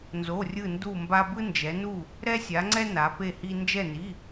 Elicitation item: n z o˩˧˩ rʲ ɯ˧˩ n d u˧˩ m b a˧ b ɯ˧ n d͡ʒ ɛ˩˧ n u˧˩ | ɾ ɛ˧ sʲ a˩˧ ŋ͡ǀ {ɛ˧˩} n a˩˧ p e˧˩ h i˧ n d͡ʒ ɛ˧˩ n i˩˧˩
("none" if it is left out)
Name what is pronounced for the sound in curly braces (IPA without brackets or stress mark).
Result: ɛ˧